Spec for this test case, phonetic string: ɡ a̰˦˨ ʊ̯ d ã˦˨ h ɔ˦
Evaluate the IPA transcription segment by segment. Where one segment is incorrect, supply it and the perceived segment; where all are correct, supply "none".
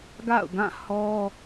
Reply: d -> ɡ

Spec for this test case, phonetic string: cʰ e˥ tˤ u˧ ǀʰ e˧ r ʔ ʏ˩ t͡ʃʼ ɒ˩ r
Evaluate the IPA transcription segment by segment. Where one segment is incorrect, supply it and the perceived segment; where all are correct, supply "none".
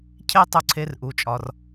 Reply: ʏ˩ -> u˩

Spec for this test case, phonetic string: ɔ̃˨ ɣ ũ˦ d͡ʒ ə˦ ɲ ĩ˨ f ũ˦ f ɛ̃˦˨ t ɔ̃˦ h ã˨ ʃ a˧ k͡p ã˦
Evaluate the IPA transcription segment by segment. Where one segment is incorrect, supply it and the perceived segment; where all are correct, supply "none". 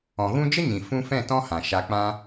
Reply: none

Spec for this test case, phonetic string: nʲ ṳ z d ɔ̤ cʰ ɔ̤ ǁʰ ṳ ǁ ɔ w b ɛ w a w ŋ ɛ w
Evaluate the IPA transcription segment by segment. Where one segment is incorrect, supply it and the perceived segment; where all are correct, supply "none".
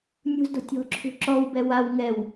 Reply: cʰ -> tʲ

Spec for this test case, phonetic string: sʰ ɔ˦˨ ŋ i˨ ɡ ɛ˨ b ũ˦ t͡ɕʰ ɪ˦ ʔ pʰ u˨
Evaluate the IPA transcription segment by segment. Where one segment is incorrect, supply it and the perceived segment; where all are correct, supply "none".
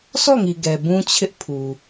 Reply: none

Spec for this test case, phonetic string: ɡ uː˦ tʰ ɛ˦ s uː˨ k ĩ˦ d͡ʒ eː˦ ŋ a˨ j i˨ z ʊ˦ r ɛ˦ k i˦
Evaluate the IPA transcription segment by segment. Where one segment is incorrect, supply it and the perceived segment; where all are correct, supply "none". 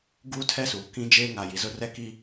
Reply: none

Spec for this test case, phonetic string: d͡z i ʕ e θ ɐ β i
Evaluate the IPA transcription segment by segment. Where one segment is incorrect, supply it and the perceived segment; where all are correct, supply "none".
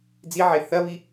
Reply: none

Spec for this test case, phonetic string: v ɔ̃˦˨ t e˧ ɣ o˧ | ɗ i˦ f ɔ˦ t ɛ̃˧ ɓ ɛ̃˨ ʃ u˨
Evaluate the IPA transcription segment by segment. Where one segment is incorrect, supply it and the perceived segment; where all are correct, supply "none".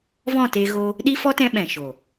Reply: u˨ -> o˨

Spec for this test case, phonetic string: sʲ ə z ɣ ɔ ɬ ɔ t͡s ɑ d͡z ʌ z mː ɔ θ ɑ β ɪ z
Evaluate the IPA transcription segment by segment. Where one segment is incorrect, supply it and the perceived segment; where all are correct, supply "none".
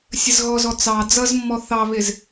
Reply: ɬ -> z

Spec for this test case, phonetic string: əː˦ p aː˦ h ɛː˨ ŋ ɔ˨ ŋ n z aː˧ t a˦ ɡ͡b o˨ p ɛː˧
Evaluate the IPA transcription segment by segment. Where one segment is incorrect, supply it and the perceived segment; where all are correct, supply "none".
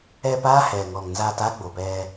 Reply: əː˦ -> ɛː˦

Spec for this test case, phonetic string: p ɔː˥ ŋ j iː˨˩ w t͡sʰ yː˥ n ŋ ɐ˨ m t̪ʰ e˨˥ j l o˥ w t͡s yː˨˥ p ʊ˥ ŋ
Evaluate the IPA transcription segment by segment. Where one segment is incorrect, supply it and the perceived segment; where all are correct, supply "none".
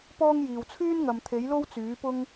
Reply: none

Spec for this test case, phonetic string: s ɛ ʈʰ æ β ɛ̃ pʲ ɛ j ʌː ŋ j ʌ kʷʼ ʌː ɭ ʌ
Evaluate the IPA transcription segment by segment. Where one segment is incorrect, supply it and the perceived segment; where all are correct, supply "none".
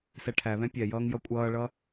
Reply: none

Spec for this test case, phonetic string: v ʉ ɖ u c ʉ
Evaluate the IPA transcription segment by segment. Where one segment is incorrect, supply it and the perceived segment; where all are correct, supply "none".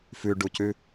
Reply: v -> f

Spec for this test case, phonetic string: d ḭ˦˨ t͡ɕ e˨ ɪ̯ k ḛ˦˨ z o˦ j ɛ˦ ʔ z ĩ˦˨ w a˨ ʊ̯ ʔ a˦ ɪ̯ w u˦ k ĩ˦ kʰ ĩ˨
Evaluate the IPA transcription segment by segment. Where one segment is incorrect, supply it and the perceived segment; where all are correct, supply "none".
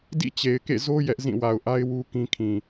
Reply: none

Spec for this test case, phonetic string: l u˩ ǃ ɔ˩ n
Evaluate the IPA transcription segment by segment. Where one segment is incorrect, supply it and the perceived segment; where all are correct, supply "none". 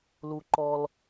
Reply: n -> l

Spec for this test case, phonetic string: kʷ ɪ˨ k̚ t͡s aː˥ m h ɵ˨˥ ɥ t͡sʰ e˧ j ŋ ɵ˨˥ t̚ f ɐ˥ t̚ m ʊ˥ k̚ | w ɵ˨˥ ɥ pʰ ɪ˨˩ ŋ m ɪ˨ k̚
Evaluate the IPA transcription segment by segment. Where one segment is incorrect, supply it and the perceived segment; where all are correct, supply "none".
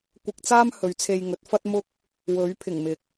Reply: none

